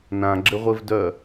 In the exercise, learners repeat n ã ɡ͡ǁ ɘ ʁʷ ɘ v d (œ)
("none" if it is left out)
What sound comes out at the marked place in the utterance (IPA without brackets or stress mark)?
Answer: œ